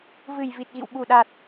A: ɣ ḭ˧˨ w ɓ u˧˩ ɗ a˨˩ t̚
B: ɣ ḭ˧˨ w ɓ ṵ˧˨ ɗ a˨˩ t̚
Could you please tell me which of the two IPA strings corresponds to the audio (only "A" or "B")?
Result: A